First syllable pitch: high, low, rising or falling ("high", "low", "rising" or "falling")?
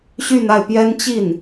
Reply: falling